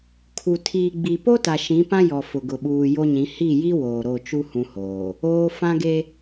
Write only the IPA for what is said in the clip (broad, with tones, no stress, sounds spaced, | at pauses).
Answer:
kʰ u˨ tʰ iː˨ ɡ͡b i˨ p o˦ t a˨ ʃ ĩ˨˦ p ã˦ j ɔ˨ f ʊ˨ ɡ ʊ˨ ɓ uː˨ j o˦ ɲ ĩ˨˦ h i˦˨ j i˦ w oː˨ ɾ o˦˨ t͡ʃ u˦ h ũ˦ h oː˨ | oː˦ f ã˦ ɡ e˦